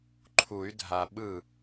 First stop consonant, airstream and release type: click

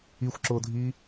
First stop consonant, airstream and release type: click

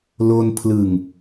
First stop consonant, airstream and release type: aspirated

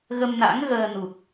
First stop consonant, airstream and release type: plain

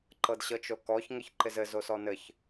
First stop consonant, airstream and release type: click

